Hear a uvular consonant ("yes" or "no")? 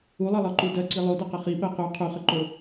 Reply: yes